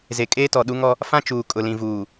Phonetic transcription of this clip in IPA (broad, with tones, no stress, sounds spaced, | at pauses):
z e˨ kʼ eː˦ t ɔ˨ ɗ u˦ ŋ ɔ˦ | f ã˦ t͡ʃ uː˨ kʼ ʊ˨ l ĩ˨ v uː˨